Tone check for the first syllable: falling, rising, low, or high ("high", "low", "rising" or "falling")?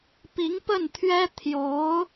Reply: rising